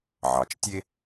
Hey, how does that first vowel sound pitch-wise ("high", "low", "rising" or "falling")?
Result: low